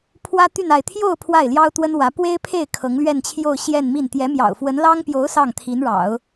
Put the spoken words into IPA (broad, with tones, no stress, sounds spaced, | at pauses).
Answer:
pʰ w ä˥ t̪ y˥˧ n a˥˧ ɪ̯ t̪ʰ j o˥˧ ʊ̯ pʰ w a˥˩ ɪ̯ l j ɑ˥ ʊ̯ t̪ w ə˥ n w ä˧˥ p w e˥ ɪ̯ pʰ e˥˩ ɪ̯ kʰ ɤ˧˥ ŋ l ɥ ɛ˥˧ n t͡ɕʰ j o˥˧ ʊ̯ ɕ j ɛ˥˧ n m i˥˩ n t̪ j ɛ˧˥ m j ɑ̰˨˩ ʊ̯ f w ə˧˥ n l ɑ˥ ŋ p j o˧˥ ʊ̯ s ɑ˥˩ ŋ t̪ʰ i˧˥ n ɻ ɑ̰˨˩˦ ʊ̯